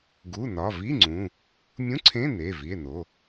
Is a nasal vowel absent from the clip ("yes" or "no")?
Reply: no